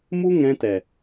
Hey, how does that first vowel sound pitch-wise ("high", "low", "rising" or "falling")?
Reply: high